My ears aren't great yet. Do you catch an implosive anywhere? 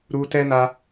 no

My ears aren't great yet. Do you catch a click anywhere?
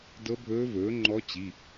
yes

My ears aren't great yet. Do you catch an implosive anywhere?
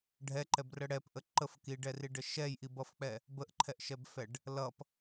no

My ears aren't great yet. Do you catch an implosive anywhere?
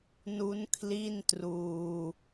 no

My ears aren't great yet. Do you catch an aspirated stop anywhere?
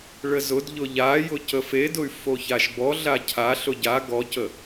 yes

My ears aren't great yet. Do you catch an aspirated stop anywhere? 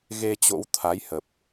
yes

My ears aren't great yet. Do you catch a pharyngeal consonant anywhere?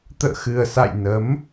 no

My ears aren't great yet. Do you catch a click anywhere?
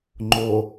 yes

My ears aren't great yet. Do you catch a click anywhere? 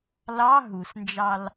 no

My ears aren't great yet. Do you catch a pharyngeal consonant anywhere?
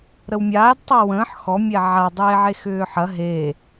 yes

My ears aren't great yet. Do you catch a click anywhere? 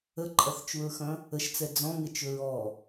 yes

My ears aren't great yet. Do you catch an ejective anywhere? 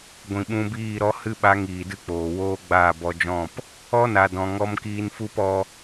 no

